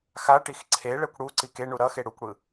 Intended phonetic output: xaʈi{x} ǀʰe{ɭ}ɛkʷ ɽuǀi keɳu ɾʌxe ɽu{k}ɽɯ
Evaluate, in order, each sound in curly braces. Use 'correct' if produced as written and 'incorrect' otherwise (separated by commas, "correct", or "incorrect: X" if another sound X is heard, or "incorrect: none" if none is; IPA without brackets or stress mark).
correct, correct, incorrect: kʷ